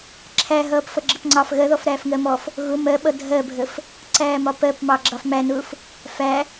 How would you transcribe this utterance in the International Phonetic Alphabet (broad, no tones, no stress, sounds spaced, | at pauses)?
ǁʰ æ ɦ ʌː p f ʌ ɡ͡ǁ ə p ŋ͡ǀ ɑ f ɣ ɜ ð ɔ f ɾ æː f ŋ ɜ m ɔ f | ɣ ʊ m ɜ ɓ ʌ dʱ ɜ bʱ ə f | ǀ æː m ɒ p ɜ p m ɑ ɡ͡ǁ ɑ f m æ n ʊː f | f æ